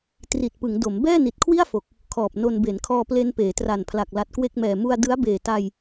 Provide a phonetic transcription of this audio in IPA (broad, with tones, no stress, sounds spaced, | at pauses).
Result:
t r i˨˩ t̚ p ɯ˩˦ ŋ d o˩˦ m b ɛː˥˩ n i˨˩ t̚ kʰ w i˥˩ a̯ f o˨˩ k̚ | kʰ ɔː˨˩ p̚ n o˧ n b e˩˦ n kʰ ɔː˧ p l e˧ n p eː˩˦ t r a˨˩ n pʰ l a˨˩ k̚ l a˨˩ t̚ k w e˥˩ k̚ m ɛː˨˩ m u˧ a̯ d ɯ˦˥ a̯ b eː˨˩ t a˧ j